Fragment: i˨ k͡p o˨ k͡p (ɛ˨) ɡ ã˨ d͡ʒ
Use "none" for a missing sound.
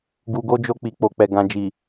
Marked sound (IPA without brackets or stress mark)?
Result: ɛ˨